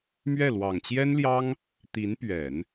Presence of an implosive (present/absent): absent